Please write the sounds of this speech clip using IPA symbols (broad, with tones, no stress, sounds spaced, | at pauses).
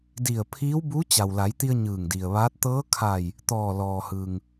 d i˧˩ ə̯ pʰ iː˧˥ w b u˧˥ t͡ɕ a˩ w l a˩˧ j t̪ i˧ ə̯ ɲ ɯː˧˩ ŋ d i˩ ə̯ ʋ aː˧˥ t̚ t̪ ɤː˧˥ kʰ a˧˩ j | t̪ ɔː˧˩ l ɔː˩ h ɯː˩ ŋ